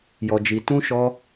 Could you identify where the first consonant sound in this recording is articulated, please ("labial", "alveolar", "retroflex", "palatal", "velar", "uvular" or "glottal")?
palatal